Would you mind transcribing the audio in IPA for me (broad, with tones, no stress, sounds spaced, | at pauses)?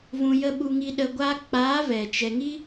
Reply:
v ũ˧ j ə˦ ɓ u˧ ŋ i˧ ɗ ə˧ ɡʷ aː˦ k͡p aː˨˦ v ɛ˨ t͡ʃ ɛ˨ ŋ i˦